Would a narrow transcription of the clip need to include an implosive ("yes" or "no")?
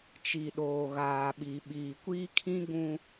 yes